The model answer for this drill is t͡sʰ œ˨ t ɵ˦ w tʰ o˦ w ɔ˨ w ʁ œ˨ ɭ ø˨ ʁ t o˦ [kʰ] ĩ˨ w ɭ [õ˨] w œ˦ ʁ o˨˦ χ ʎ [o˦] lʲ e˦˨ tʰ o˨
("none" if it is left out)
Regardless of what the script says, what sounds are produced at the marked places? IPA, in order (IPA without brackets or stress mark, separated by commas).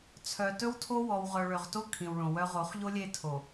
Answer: kʰ, õ˨, o˦